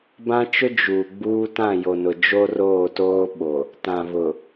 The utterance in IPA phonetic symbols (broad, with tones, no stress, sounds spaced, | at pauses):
b ã˦ t͡ʃ ʊ˦ d͡ʒ uː˨ ɡ͡b uː˦ t ã˦˨ j o˨ n ʊ˨ d͡ʒ o˦ r oː˦˨ t oː˦ ɓ o˨ | t ã˨ β ʊ˨